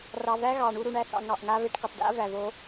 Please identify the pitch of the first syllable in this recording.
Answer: low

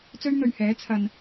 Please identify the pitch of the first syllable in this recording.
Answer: high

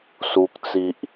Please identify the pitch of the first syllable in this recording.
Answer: high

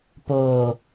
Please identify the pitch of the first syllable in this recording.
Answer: low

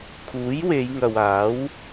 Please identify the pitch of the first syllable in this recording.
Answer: rising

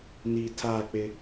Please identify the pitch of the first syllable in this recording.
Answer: low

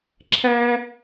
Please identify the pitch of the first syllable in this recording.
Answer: high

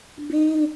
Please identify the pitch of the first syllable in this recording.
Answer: high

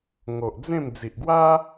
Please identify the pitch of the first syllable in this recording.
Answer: low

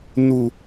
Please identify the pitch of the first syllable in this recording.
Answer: high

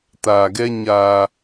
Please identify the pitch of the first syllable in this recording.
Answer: low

